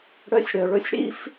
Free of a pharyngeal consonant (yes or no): yes